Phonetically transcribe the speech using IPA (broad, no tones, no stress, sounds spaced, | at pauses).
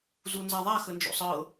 z u n z a ðˤ a x ə n d͡ʒ o̰ sˤ ɤ